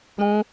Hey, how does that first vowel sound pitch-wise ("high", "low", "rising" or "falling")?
high